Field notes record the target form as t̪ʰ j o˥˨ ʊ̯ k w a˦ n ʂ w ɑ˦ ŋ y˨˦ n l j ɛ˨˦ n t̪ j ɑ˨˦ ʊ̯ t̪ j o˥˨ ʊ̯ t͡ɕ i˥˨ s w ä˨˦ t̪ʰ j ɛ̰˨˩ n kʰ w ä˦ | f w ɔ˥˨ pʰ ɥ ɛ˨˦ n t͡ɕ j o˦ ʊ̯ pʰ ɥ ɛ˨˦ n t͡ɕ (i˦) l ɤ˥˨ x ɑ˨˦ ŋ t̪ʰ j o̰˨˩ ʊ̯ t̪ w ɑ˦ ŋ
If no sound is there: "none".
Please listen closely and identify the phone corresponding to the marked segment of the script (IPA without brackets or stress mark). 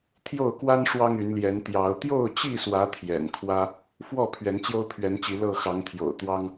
i˨˦